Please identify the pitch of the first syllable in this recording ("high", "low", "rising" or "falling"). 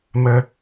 high